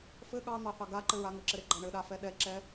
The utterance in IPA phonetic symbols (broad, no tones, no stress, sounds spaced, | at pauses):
f ɘ ɠ ɑ n̪ ɑ θ ɑ ɡ a ǃ ɘ ɹ a ŋ ɘ ǁ ɘ ɾ e ɡ͡ǃ ɑ ɳ ɘ ɗ a f ɛ ɗ ɛ ǁ ɛ